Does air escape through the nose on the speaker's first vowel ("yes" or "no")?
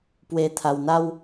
no